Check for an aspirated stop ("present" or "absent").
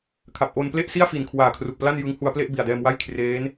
present